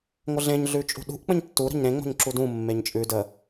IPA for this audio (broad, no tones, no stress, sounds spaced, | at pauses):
ŋʷ ə ɮ ẽ ɲ ɮ ʉ t͡ʃʼ ṳ ɗ ṳ ʔ k͡p ə̃ ɲ tː u ɾ ə̤ ɲ ɾ ẽ ŋ͡m o̤ ɲ ǁ u d ũ mː e ɲ t͡ʃʼ ʉ d ə